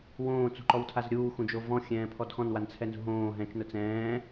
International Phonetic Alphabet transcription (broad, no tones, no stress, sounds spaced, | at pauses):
w õː t͡s ṳ ǃ ɔ w tʰ a z ɾʲ uː x ũ d͡ʒ o v ɔ̃ xʲ ɛ̃ː pʰ ɔ d x ɔ̃ n w a n t͡sʰ ɛ n z ṳ ɦ õː ɦ ɛ̃ t͡ʃ n ʊ t͡s ɛ̃ː